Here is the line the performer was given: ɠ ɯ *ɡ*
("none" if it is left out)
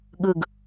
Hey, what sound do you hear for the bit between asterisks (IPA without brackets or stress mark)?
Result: ɡ